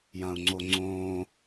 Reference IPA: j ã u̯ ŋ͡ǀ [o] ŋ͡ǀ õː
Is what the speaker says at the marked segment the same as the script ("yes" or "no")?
yes